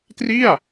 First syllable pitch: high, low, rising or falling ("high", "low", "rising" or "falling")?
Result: falling